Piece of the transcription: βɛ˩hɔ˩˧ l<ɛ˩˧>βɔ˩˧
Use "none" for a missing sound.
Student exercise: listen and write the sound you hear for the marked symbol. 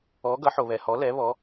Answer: ɛ˩˧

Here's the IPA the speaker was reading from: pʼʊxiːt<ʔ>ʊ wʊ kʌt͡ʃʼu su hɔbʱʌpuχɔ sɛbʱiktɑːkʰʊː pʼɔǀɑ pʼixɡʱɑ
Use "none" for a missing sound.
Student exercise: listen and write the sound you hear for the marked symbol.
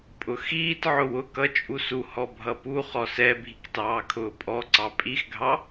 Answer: ʕ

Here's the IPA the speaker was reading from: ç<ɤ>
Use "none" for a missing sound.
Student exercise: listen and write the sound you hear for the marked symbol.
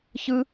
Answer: ɯ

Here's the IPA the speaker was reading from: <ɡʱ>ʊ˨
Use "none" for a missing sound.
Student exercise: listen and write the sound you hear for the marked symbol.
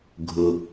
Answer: ɡʱ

